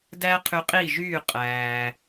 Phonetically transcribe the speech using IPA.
d æː˥ qʰ y˧ qʼ i˥˩ ʒ yː˥˩ qʼ æː˩

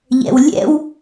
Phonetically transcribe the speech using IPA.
ʎ ɛ̰ w lʲ ɛ̰ w

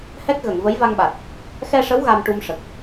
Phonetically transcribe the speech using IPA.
h ɛ˦˥ k̚ ɣ ə˨˩˨ ŋ v ə˧˥ j v a˧ ŋ ɓ a˨˩ t̚ | x ɛ˧ ʂ ə˧˥ w ɣ a˧ m ʈ u˧ m ʂ ə˨˩ k̚

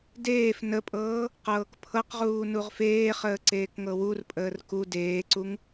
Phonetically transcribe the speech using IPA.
d eː f n ə pʼ ɤː | q ɤː k pʰ ɤ q ʁ uː n u ʁ f eː χ əː ǀ eː k ŋ ɤ w u r pʼ əː r k u d eː ǀ u ŋ

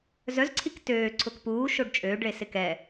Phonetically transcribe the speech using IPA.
z œ z ǀʰ i k t øː ǀʰ ʊ k p uː ʃ o ɖ t͡ʃʼ øː ɖ ɭ e s ɪ k ɛ

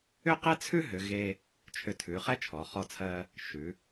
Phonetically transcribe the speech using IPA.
ʏ˥ q ɛ˥ t͡sʰ ʉ˥ ɦ ʏ˩˧ ɣ e˧ | t͡ʃʰ ʏ˧˩ tʰ ʉ˩˧ χ ɛ˥ t͡ʃʰ ɔ˩˧ χ ɔ˥˧ t͡sʰ ɜ˥ | ʃ ʉ˩˧

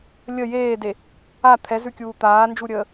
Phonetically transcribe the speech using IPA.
lʲ ə j eː d e | a t̪ʰ ɛ z ʉ kʲ uː t̪ aː n d͡ʒ u ɾʲ əː

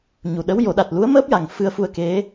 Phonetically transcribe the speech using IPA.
ɲ u˨˩ ɗ ə˧˥ w j o˨˩˦ ɗ a˨˩ t̚ l u˧˥ ə̯ m əː˦˥ p̚ j a˨˩ ŋ f ɨ˧ ə̯ f u˧ ə̯ k e˧˥

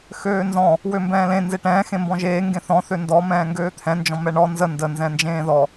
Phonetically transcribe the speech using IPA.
x øː n z ɔ̃ | w ø m b ɛ̃ː l ẽ n z e ʈ ɛ̃ː x ẽ m b ɔ̃ ʒ eː ŋ ɡ ẽ θ ɔ̃ θ ø n d ɔ m ɛ̃ː ŋ ɡ øː t̪ʰ ɛ̃ n d͡ʒ ɔ̃ m ɛ ɳ ɔ n z ə n d ə n z ɛ̃ n d͡ʒ ẽː ð ɔ

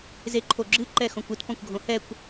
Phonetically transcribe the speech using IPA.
z e ǃʰ o ɡ͡ǁ ɨ ǃ ɛ x õ kʷ ɨ t p ɔ̃ kʷ ɡʱ õ h ɛ kʷ

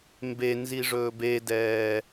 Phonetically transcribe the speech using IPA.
m b e n z i ʐ ɵː b e d ɛː

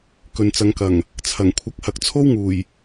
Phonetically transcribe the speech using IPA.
k ɵ˨ n t͡s ɐ˨˧ ŋ k ɐ˨˩ ŋ | t͡sʰ ɐ˨˩ ŋ kʷʰ ɐ˨˥ k̚ h ɐ˨ k̚ t͡sʰ o˥ w ŋ uː˨˩ j

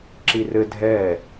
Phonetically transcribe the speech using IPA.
ǁ i r ɘ dʱ ɛ

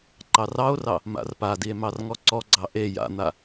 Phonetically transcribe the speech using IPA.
ǃ ɑ r ɑ o̯ r ɑ | m a̰ r p a d i e̯ m ɑ r ŋ ɔ ǀ ɔ ɡ͡ǀ ɑ ʔ e j a̰ n̪ a

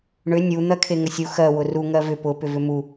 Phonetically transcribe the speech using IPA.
ɳ ʏ nʲ u n̪ ɜ kʰ e ŋ ə sʲ u x ɜ w ʊ r u ŋ ɜ v ʏ p ʊ p ʏ v ʏ m u

